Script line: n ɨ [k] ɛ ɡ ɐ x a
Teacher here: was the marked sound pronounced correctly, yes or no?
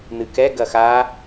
yes